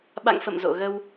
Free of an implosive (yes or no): no